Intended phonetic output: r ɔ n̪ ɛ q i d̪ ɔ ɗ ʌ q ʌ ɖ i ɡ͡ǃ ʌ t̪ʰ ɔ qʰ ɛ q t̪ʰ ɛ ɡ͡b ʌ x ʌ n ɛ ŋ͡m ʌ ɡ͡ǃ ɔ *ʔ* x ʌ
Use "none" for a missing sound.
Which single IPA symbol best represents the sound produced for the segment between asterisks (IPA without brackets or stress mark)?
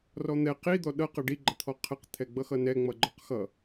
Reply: q